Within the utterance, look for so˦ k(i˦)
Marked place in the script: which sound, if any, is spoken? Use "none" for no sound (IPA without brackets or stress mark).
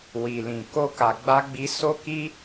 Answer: i˦